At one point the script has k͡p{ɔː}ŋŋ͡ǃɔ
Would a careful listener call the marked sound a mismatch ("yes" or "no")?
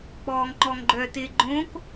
no